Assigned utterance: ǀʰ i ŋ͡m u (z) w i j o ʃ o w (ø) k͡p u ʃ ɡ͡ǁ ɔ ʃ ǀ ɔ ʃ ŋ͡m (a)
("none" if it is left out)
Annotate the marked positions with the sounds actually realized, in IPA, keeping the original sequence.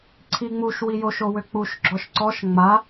ʃ, ø, a

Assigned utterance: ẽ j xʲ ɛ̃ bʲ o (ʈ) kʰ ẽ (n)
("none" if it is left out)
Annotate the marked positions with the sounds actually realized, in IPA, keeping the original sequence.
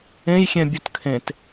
t, t

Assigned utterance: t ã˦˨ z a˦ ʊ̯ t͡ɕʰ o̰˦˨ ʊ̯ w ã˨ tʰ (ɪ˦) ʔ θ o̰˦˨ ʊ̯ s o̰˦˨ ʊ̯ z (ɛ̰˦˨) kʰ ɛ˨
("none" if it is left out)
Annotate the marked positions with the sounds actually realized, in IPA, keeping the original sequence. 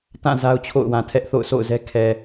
ɛ˦, ɛ˦

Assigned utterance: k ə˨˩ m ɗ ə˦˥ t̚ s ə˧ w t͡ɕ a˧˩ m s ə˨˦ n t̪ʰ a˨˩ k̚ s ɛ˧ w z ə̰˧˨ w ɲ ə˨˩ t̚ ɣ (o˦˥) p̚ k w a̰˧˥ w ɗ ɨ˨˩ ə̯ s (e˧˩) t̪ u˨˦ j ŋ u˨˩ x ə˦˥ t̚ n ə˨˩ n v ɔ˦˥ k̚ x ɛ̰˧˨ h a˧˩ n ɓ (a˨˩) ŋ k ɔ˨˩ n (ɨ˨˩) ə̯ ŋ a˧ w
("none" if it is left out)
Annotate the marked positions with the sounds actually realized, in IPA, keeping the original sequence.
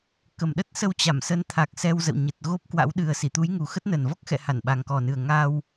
o˦˥, i˧˩, a˨˩, ɨ˨˩

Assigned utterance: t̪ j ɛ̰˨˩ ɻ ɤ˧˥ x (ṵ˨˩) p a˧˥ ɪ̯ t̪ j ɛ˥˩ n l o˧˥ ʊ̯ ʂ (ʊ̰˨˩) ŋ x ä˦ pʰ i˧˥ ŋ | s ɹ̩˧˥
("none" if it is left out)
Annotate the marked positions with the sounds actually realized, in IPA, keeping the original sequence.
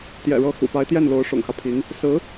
ṵ˨˩, ʊ̰˨˩

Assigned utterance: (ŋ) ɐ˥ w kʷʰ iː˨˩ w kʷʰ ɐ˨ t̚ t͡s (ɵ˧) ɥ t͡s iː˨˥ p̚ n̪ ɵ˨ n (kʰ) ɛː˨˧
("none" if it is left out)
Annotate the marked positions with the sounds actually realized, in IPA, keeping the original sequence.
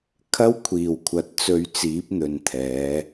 kʰ, ɵ˧, t̪ʰ

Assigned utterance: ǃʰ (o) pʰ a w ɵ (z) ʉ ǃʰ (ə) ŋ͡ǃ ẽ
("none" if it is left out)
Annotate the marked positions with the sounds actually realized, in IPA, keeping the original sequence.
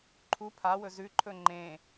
u, z, ɵ

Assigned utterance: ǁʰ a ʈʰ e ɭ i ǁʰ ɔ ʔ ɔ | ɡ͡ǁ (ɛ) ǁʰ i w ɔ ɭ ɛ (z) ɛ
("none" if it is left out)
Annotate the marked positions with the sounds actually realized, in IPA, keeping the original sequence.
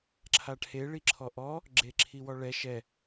e, ʃ

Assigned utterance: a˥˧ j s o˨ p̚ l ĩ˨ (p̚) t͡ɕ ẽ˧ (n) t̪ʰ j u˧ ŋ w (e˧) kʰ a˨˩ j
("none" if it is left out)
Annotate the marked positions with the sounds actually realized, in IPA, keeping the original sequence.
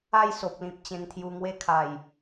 p̚, ŋ, e˦

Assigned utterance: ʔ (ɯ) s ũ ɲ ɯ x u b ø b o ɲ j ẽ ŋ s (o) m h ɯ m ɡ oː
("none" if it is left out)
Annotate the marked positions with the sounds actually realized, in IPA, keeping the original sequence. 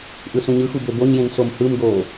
ɯ, o

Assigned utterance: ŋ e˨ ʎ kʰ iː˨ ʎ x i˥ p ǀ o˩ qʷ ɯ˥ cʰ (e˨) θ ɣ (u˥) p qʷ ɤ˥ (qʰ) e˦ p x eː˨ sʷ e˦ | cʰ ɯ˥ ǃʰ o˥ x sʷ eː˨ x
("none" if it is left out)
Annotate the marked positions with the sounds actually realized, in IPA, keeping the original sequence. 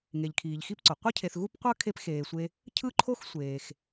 e˨, u˥, kʰ

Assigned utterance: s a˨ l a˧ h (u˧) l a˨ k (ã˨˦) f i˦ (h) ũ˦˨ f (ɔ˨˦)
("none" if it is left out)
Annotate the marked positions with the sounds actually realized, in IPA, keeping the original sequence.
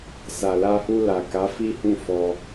u˧, a˨˦, h, ɔ˧

